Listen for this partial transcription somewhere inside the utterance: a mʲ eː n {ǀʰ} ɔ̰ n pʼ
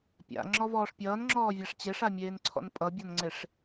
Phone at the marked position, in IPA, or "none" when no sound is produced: ǀʰ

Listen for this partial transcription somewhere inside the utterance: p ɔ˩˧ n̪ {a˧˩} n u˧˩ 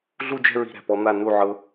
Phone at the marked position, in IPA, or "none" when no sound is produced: a˧˩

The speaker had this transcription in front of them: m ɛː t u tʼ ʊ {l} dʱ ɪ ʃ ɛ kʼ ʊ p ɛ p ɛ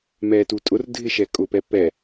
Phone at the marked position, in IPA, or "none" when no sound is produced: r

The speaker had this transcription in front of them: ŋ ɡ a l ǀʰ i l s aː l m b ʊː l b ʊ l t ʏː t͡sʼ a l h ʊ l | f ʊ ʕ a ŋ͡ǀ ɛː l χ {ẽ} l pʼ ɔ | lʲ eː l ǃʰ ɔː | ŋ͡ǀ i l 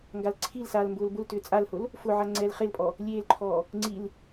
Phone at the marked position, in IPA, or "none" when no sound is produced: e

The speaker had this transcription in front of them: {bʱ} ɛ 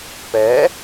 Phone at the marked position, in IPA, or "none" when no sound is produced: p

